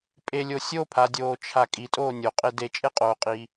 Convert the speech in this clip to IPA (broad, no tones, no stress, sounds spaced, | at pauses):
pʼ e lʲ o sʲ o pʰ a dʲ oː t͡ʃʰ a kʼ i tʼ oː nʲ o qʼ e d e t͡ʃʼ e qʼ oː qʼ iː